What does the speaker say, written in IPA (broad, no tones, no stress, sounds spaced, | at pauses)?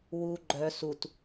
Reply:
w u ɡ͡ǃ œ s u t